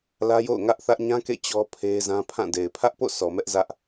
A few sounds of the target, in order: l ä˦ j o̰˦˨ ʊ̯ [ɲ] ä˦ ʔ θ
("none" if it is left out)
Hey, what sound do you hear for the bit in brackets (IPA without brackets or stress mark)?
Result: ŋ